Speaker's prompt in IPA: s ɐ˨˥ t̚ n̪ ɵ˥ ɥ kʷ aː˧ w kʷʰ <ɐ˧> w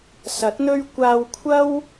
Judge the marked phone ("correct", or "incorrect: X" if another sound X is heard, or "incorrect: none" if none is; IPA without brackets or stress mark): incorrect: ɐ˥